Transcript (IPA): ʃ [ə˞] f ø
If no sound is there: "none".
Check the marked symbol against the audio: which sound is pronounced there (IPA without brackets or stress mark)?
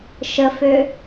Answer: ə